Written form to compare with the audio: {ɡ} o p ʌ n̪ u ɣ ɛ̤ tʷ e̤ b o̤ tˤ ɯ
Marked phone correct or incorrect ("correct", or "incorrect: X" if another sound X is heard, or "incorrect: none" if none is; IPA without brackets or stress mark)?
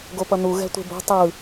correct